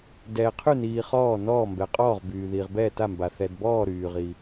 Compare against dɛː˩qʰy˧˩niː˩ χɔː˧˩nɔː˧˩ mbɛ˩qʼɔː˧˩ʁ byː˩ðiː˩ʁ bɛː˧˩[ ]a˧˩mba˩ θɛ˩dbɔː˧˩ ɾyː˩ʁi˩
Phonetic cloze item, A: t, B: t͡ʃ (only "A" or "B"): A